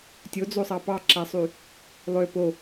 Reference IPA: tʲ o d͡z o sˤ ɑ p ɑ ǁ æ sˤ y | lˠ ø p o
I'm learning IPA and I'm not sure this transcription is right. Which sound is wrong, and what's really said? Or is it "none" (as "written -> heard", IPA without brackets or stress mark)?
none